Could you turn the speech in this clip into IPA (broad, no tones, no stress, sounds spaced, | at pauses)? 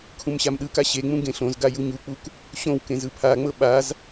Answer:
kʰ ũ m ɕ a m ɗ ɯ k a ɕ e ŋ͡m ũ ɡ ẽ ɬ õ z ɡ a j u ɲ u k͡p u k | ɕ õ w k ẽ z ɯ pʰ a ŋ͡m ɤ ɓ a z